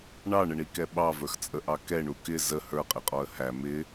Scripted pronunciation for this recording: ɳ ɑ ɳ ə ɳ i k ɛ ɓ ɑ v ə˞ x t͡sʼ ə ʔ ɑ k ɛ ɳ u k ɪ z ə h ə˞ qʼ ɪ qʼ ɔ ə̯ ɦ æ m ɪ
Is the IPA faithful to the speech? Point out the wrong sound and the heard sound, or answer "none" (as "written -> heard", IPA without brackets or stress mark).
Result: ɦ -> h